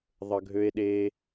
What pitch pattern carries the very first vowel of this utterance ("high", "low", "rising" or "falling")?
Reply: low